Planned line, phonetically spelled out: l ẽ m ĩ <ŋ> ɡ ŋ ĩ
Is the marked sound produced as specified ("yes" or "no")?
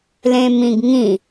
no